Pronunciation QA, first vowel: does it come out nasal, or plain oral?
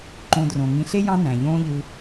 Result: nasal